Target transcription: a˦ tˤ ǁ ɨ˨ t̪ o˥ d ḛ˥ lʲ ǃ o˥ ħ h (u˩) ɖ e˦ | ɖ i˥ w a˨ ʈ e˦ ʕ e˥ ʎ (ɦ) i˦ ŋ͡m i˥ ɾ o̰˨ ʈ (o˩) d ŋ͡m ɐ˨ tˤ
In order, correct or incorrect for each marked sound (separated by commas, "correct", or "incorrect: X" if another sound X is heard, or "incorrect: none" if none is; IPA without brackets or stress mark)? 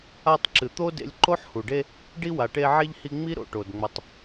correct, incorrect: h, correct